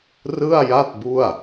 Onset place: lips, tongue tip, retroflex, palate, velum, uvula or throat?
tongue tip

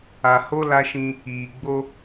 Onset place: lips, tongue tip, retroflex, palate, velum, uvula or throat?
throat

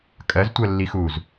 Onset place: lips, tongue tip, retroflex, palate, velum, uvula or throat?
velum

